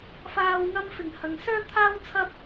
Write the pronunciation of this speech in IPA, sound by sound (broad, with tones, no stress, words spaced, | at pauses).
faː˨wŋɐ˧mfɪ˨˩ŋ hɐ˨ŋsœː˥t̪ʰaː˥w t͡sʰɐ˧p̚